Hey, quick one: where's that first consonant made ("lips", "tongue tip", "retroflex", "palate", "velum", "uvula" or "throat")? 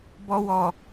lips